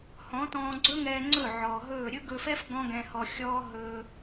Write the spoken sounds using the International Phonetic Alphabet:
h ɔ̃˨˦ t ɔ̃ː˧ ɡ͡ǀ ɵ˦ ŋ ɛː˧ ŋ͡ǀ ɵ˦˨ ʕ ɔː˨ ɦ ɵː˦˨ ɾʲ ɵ˦ ɡ ɵ˧ f ɛ˦ f ɡ ɔ̃˦ ɡ ɛ̃˧ h ɔ˧ xʲ ɔː˦ ɦ ɵ˧

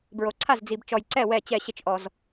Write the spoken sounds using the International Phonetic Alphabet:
b ɹ o˨ ǀʰ a˥˩ z d͡z i˨ b t͡ʃ ɔ˨ j ǀ ɛ˥˩ w ɛ˥˩ t͡ɕ ɛ˥˩ ɕ ɪ˥˩ t͡ʃ ʔ ɔ˨ z

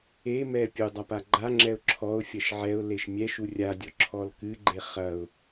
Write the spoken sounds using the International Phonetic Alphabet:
e m ɛ pʲ u dˤ a p a ɡ͡ǃ a ŋ͡ǁ ɛ ʊ̯ ǁʰ ɔ ʊ̯ fʲ ɐ ʃ ʕ ɛ ʊ̯ l e ʃ mʲ ɛ ʃ u rʲ a dʲ ɔ ǁʰ ɔ l k ɨ ɡ͡ǃ e χ ɐ ʊ̯

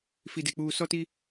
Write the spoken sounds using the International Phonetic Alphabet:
f i˨ d e˨ k͡p uː˨ s ɔ˦ t i˦

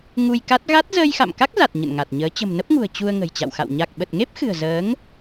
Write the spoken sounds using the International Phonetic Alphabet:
ŋ u˧ j k a˦˥ t̚ ɣ a˦˥ t̚ z əː˧ j x a̰˧˨ m k a˦˥ k̚ z a˨˩ t̚ ɲ ə̰˧˨ n ŋ a˨˩ t̚ ɲ əː˨˦ t͡ɕ ə̤˨˩ m n ə˦˥ p̚ ŋ ṳ˨˩ ə̯ t͡ɕ u˧ ə̯ ŋ ə̤˨˩ j t͡ɕ a̰˧˨ w x a̰˧˨ w ɲ a˨˩ k̚ ɓ ə˨˩ t̚ ŋ e˦˥ p̚ x ɨ̤˨˩ ə̯ z əː˨˦ ŋ

